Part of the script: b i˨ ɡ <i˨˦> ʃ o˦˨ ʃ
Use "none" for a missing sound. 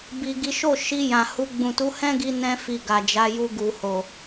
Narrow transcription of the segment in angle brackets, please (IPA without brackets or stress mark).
i˨˦